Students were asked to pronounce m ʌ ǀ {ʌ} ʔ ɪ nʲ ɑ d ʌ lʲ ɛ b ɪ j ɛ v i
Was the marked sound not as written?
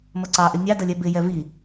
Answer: yes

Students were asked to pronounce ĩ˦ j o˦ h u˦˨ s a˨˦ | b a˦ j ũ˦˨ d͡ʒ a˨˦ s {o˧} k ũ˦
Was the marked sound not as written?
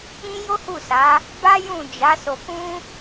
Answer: no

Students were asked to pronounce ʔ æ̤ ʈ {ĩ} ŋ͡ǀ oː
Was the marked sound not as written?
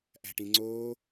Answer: no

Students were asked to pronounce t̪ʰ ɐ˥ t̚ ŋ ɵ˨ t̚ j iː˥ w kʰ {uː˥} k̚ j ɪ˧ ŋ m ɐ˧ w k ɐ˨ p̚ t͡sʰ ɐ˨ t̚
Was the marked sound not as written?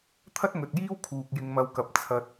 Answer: yes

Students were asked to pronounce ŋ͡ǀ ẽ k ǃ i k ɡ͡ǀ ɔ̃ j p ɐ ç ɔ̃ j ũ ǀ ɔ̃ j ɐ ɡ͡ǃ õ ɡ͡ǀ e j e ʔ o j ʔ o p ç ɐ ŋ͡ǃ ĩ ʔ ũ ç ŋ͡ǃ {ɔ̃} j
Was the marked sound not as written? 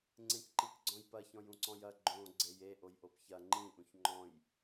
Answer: no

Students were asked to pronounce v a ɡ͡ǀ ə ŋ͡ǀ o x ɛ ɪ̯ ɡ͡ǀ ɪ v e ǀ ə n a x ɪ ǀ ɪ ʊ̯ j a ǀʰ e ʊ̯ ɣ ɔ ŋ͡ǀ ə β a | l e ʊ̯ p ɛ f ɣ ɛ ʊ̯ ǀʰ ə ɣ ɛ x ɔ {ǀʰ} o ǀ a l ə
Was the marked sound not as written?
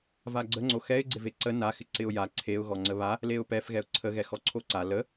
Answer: no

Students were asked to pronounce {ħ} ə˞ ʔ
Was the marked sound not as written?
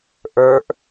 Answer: yes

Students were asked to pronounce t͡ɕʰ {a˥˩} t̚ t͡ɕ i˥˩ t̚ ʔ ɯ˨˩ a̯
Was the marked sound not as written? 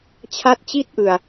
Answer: no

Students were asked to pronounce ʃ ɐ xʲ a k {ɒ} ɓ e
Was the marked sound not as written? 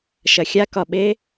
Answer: no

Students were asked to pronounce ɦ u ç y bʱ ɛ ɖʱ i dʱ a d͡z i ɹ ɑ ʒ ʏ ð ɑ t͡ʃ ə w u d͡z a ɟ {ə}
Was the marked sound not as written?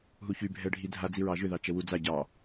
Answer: yes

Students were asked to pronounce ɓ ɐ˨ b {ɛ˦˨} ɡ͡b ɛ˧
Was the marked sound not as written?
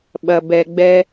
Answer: yes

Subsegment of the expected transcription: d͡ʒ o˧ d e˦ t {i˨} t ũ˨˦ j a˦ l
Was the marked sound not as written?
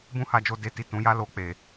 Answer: yes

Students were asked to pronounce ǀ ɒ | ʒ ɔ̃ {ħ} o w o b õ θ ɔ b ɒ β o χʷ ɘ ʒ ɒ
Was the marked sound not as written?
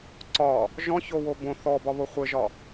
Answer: yes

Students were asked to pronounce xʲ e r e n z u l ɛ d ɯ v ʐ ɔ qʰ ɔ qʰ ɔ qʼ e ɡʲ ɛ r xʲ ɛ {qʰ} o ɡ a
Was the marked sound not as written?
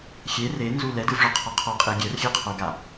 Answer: no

